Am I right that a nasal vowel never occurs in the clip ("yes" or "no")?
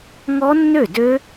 yes